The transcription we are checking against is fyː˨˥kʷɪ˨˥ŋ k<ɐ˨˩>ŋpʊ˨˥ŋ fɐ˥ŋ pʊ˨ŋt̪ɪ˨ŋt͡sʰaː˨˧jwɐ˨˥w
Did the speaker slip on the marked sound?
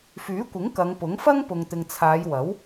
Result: yes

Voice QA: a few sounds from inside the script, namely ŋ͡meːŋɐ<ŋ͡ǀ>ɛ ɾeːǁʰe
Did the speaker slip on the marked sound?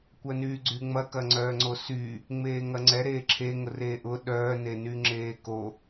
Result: no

